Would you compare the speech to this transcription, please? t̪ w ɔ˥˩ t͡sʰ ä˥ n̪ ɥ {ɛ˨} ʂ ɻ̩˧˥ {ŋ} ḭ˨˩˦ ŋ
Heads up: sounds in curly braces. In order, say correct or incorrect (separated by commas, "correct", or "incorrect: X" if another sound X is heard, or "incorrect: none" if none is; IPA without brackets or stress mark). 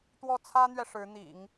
correct, incorrect: n̪